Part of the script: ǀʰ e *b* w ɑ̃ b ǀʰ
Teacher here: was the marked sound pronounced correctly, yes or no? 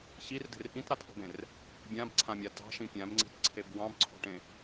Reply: yes